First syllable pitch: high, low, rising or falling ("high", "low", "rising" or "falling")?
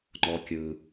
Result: low